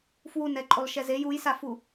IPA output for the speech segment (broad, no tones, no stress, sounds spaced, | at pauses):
f w u n ɛ ǃʼ o lˠ ʃ ɛ z e j u j s a f u